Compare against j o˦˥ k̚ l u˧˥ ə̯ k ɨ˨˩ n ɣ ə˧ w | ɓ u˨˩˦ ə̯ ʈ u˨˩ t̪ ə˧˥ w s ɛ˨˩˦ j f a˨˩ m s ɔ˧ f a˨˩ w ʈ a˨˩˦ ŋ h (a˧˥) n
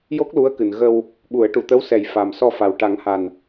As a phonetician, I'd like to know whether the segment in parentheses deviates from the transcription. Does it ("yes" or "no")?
yes